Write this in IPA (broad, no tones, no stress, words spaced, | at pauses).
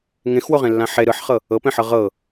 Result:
ŋẽxwoʁẽlːã ħe ɾɯħχɤ | ɤpẽħɤ ʁɤ